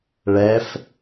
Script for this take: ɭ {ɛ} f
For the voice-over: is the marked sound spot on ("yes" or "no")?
yes